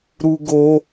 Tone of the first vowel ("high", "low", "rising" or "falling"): high